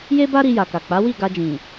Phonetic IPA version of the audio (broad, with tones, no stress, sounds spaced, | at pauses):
j e˦ b a˦ ɾ i˧ j a˨ k a˨ k͡p a˨˦ w i˦˨ ɡ a˧ d͡ʒ ĩ˨